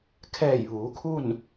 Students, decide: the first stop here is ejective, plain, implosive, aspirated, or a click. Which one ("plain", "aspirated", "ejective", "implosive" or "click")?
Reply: aspirated